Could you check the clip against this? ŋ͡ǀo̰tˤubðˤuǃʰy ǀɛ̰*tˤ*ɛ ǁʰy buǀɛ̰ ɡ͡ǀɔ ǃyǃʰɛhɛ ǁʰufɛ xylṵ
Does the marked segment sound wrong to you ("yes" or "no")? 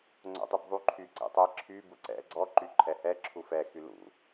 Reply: no